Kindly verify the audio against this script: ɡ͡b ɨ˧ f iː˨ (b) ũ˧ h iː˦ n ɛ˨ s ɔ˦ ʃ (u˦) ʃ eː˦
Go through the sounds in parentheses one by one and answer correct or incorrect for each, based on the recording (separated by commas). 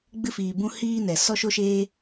correct, incorrect